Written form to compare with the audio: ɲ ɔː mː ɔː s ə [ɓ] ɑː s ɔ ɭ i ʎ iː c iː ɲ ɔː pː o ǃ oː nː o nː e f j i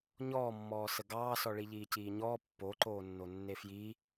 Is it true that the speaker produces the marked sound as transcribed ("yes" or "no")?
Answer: no